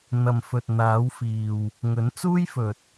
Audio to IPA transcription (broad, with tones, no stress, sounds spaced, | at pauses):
n̪ ɐ˨ m f ɵ˨ t̚ n̪ aː˨˥ w f iː˨ w | ŋ ɵ˨˥ n t͡s uː˥ j f ɵ˨ t̚